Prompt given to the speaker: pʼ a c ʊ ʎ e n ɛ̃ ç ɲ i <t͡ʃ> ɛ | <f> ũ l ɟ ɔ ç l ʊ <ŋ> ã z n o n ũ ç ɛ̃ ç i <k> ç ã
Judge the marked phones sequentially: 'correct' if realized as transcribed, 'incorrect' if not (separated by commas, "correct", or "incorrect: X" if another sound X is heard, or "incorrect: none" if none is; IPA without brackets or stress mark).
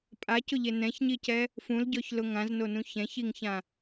incorrect: c, correct, correct, incorrect: ŋ